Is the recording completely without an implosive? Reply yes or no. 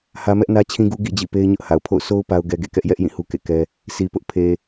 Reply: yes